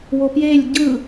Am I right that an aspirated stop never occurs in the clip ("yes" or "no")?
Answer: yes